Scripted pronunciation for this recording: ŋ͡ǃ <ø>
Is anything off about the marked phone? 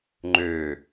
no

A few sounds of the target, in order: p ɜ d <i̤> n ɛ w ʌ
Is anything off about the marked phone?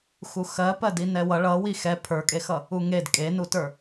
yes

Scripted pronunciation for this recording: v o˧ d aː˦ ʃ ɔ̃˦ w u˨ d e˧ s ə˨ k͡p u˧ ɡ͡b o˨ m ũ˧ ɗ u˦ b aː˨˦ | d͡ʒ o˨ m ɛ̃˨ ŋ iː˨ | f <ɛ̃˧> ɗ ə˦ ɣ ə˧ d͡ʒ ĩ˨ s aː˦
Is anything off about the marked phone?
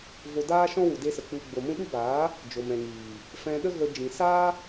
no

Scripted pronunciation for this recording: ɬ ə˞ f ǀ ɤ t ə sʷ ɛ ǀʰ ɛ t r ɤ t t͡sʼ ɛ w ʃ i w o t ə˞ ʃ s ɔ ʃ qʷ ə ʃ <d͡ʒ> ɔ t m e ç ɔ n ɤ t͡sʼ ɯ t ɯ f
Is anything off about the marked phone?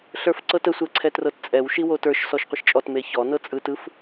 yes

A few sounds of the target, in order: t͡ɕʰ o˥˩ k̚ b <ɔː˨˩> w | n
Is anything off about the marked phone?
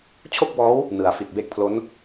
yes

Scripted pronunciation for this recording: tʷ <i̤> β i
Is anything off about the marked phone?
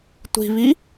no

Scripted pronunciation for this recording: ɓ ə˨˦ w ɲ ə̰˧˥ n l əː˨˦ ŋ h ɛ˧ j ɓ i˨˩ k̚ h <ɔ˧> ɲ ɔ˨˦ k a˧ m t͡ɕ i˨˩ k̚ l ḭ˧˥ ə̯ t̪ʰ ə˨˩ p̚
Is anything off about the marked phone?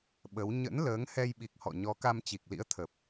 yes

